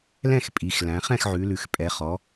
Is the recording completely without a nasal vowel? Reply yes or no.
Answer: no